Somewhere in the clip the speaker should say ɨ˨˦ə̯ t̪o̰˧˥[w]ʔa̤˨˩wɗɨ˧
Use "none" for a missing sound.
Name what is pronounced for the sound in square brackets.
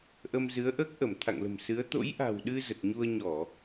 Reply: j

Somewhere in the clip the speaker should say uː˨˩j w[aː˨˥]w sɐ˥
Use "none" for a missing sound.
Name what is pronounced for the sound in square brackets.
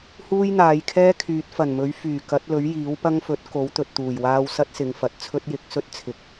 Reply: aː˧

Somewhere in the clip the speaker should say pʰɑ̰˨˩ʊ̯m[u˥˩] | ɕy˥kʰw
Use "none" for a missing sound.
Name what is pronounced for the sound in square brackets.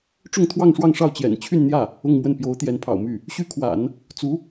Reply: y˥˩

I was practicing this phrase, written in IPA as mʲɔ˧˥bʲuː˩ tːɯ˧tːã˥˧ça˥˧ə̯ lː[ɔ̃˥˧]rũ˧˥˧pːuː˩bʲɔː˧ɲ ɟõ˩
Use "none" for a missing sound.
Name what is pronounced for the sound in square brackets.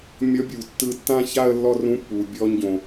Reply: ɔ˥˧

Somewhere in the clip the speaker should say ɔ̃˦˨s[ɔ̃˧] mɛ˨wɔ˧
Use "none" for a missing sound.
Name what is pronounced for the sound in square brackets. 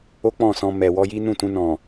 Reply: ɔ̃˧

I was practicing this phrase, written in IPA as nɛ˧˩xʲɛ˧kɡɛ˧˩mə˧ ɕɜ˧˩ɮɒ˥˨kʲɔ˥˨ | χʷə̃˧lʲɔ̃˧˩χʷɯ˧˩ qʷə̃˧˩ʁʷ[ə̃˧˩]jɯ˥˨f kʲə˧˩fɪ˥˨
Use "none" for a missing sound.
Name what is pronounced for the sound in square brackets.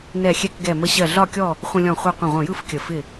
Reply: ə̃˧˩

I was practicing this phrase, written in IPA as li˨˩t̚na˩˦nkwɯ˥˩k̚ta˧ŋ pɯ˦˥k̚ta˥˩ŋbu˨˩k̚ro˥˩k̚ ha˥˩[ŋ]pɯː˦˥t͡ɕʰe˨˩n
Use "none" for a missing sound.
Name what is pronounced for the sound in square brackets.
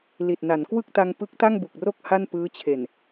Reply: n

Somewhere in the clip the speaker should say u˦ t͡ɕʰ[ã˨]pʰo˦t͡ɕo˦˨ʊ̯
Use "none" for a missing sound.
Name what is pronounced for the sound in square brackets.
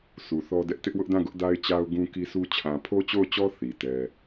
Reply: ã˨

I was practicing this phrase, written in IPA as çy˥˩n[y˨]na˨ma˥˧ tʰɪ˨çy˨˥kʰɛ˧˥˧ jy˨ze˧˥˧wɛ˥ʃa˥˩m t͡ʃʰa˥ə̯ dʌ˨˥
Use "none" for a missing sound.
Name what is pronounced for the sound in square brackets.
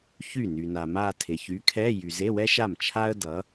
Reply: y˨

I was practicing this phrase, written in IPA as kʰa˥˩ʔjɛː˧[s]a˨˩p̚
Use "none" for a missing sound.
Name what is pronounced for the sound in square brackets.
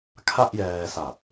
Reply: s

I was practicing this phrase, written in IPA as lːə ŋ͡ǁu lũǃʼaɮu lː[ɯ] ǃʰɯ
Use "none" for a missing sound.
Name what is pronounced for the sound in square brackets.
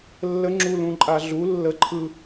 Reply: ə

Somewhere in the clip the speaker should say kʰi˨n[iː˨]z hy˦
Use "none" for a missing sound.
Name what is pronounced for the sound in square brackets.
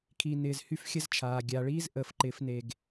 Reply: ɪː˨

